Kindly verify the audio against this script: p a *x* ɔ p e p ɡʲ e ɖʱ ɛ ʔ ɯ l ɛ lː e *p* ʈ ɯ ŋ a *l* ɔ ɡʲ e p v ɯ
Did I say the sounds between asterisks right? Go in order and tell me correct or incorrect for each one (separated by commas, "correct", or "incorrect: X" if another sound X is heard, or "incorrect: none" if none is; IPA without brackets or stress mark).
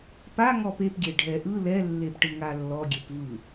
incorrect: ŋ, correct, incorrect: lː